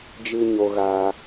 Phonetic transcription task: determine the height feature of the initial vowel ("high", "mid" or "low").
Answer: high